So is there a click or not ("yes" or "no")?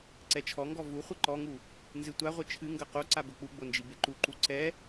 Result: yes